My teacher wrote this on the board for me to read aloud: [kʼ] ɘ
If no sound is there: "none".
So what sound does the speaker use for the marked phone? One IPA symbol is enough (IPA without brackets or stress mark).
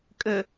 kʼ